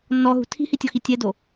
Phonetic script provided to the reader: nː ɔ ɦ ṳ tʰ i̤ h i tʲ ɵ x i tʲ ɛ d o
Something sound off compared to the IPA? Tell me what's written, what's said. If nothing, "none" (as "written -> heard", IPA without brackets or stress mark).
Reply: ɵ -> ɔ